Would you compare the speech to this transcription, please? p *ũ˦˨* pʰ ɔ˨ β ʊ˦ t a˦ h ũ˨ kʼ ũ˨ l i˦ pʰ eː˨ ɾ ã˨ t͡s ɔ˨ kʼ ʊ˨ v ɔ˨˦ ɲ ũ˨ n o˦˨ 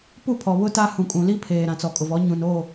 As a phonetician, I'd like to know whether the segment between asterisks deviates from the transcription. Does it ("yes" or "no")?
yes